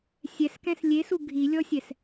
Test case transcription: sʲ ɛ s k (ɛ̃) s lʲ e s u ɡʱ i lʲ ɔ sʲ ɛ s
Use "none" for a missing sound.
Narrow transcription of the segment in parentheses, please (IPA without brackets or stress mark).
ɛ̃